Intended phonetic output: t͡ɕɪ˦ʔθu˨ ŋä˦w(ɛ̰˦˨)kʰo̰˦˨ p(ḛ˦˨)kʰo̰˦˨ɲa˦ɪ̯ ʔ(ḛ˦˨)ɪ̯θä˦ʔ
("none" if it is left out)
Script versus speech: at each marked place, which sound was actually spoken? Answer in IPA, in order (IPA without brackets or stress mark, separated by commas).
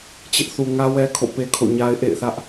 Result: ɛ˦, e˦, ḛ˦˨